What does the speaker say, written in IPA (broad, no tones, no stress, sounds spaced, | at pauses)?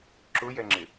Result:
ǁ ʊ j ɛ ŋ͡ǁ ɪ